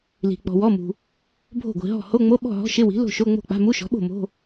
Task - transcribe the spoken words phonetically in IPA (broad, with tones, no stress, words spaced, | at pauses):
li̤˨ k͡pɔ̤˨wɔ˧˥˧mṳ˨ | bʱo̤˥˩ɡʷi̤˨ɦɔ̤˥˩ ho˧˥˧ŋ͡mo˧˥˧ ɓɔ̤˥˩ɦɔ̤˧˥˧ʃɪ˧˥˧wi̤˩˥ lo̤˥˩ʃo˧˥˧ŋ͡mo̤˥˩k͡pa̤˧˥˧ mu˧˥˧ʃɔ̤˩˥ɓo̤˥˩ mo̤˧˥˧